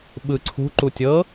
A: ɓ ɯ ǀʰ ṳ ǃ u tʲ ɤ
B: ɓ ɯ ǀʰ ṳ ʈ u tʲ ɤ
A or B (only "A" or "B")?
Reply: A